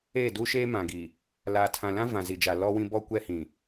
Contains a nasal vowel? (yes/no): yes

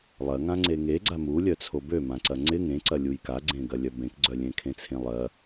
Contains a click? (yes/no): yes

